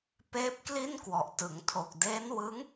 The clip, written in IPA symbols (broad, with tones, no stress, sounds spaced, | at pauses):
p eː˦˥ p̚ k l i˥˩ n k w ɔ˨˩ ʔ t ɯ˩˦ ŋ tʰ o˨˩ k̚ d eː˦˥ n w ɯ˦˥ ŋ